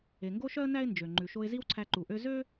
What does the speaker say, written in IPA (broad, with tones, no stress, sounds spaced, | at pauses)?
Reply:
e˩ ŋ ɡ o˥ ʃ œ˥ ə̯ n æ˥ ɪ̯ n d͡ʒ ø˩ ŋ͡ǃ ʉ˩ ʃ o˧ ɪ̯ z i˥ w ǀʰ æ˧ ǃ u˩ ʔ ø˥ z ø˥